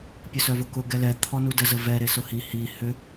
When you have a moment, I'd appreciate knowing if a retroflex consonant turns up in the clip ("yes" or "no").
no